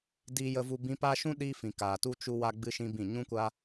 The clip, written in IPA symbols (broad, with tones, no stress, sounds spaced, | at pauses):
d iː˧ j ə˧ v u˧ b ĩ˦ p a˦ ʃ ũ˦ ɗ iː˧ f ĩ˨ k aː˨ t u˧ t͡ʃ u˦ w a˦ ɡ͡b ɨ˦ ʃ ĩ˦ b ĩ˦˨ ɲ ũ˦ kʷ a˦